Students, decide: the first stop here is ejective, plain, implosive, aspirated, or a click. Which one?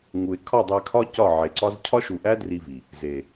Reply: aspirated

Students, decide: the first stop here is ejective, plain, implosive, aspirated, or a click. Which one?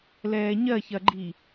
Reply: click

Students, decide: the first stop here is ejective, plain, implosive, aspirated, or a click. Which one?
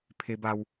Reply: aspirated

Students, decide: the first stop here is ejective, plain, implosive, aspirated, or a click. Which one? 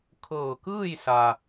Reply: aspirated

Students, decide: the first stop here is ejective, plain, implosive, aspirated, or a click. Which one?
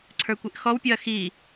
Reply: click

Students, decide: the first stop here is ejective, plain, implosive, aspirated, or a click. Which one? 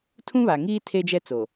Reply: aspirated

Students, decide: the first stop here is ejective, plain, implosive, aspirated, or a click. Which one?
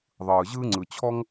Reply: click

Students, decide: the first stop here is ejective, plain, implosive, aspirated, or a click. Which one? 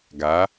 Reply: plain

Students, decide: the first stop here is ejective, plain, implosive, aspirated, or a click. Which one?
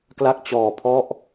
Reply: plain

